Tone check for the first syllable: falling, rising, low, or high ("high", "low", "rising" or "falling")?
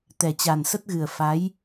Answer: low